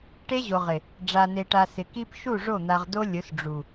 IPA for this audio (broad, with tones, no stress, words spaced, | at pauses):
ʈe˦ʑo˨ʁɪ˨ | ɖ͡ʐa˨ne˨ʈa˨ sɪ˨ki˦p ʃu˦˨ʐo˦˨n̪a˨ʁ do˦lʲʊ˨˦s ɖ͡ʐu˨